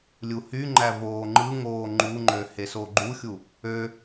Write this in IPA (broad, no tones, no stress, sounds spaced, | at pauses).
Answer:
lʲ u h y ŋ͡ǃ æ v oː ŋ͡ǃ ɯ ŋ oː ŋ͡ǃ u ŋ͡ǃ ø h e s o ɡ͡ǃ u xʲ u | ø